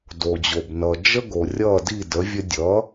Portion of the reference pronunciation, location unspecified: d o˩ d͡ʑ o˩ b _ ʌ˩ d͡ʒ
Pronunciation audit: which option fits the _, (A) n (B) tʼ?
A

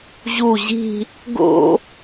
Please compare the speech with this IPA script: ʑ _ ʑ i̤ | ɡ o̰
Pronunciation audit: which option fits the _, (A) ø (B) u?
B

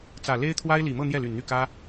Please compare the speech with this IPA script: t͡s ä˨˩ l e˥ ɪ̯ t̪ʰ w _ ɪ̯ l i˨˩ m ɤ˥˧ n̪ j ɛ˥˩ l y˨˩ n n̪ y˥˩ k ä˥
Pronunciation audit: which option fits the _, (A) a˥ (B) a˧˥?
A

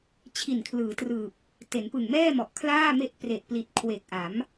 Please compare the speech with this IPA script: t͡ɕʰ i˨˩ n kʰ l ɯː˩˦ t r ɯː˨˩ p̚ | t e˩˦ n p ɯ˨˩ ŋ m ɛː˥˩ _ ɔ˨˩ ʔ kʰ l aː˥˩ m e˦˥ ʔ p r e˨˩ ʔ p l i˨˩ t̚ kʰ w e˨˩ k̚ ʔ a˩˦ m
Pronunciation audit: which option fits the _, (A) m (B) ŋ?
A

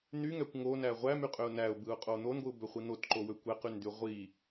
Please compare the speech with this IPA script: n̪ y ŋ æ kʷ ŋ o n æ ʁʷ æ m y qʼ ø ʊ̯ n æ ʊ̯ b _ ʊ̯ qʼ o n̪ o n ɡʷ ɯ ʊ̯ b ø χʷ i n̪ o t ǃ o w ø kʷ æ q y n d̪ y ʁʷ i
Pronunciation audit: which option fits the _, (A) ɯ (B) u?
A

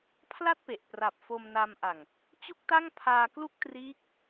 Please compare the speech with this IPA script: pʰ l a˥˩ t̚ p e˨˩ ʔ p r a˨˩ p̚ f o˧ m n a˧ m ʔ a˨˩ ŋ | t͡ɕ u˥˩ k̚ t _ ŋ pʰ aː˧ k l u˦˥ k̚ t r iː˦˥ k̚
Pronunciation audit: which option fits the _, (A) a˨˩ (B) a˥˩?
B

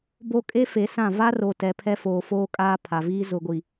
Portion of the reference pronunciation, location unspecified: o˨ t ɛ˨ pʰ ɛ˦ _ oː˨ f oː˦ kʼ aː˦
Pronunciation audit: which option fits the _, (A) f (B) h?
A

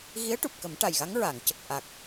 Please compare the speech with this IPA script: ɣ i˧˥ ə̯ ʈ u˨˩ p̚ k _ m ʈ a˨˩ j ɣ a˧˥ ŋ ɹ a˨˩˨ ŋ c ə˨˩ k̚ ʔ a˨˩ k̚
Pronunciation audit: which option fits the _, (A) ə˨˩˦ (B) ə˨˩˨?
A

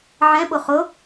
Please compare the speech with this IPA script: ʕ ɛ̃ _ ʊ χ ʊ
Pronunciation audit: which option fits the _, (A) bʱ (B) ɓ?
B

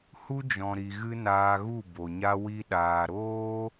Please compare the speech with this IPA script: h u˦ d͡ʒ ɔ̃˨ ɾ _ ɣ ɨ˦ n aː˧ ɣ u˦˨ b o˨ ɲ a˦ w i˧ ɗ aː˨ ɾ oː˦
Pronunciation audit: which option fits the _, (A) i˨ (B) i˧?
A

